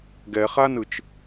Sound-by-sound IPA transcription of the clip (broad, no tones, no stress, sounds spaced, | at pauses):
ɡ ɛ χ a n ɯ t͡ʃ